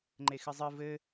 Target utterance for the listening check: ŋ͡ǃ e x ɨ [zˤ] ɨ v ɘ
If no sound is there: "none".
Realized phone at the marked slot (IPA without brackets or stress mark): zˤ